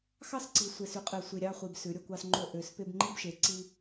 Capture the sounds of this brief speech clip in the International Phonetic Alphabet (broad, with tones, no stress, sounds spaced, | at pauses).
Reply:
x ɑ˦ s ǀ i˨ sʷ e˨ s y˨˦ qʼ e˨ sʷ i˨ ɾʲ ɑ˦ χʷ i˨ b s ʉ˨˦ ɾʲ o˦ kʷ ɑ˦ s ŋ͡ǃ o˦ ʔ ø˨ s p e˦ b ŋ͡ǃ i˦ b ʃ e˨ ǀ i˦